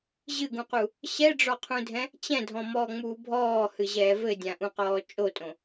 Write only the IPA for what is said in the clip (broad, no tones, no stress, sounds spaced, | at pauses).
ʑ ɨ ɡ ũ q u | ɕ ɛ ɖ͡ʐ ɔ qʰ ũ dʱ ɛ̃ | t͡ɕ ɛ̃ dʱ ɔ̃ m ɔː ŋ͡m uː bʱ ɔː h ɨ ʑ ɛː v ɘ dʲ ã ʔ ũ q ɔː t͡ʃʼ o tʼ õ